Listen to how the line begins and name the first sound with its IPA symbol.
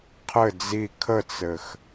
qʰ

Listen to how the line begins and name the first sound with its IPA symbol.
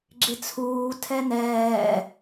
ɡ͡ǁ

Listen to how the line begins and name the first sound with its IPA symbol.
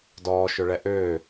d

